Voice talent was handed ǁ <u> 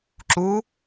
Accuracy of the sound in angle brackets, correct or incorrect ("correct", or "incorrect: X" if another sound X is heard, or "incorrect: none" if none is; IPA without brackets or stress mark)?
correct